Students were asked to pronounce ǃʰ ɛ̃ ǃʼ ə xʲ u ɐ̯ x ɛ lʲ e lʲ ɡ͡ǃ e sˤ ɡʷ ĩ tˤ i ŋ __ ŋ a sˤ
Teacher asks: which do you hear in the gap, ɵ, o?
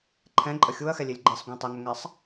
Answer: ɵ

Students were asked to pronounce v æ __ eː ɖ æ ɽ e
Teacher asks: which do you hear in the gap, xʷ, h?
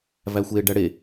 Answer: xʷ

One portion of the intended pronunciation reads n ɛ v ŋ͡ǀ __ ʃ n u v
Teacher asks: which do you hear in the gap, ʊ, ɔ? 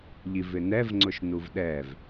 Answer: ʊ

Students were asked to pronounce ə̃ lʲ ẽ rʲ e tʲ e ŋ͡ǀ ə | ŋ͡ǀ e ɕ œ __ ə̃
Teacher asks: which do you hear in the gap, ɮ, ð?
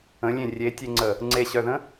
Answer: ð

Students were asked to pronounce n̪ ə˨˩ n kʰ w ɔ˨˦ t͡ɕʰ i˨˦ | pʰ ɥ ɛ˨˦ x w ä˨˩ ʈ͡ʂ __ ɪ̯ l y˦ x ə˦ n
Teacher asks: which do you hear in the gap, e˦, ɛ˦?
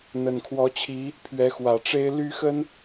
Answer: e˦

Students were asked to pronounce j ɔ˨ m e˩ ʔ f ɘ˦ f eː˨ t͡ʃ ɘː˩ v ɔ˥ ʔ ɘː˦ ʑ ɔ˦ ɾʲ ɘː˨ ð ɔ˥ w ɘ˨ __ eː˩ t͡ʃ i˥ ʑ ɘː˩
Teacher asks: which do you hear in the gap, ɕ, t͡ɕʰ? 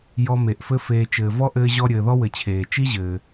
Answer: t͡ɕʰ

